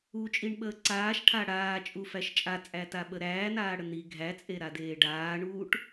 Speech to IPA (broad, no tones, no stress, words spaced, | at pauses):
ut͡ʃʼiɳɓəː ǀaːʃʈʰa ɽaːt͡ʃʼufæʃ t͡ʃʼat͡sʼætaɓə ɾæːnaːɽə ni ɡʱæt͡sʼeɾadeː ɖaːɳuːʈ